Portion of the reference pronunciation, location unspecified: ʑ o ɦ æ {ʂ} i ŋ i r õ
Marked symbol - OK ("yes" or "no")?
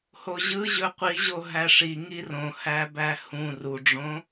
yes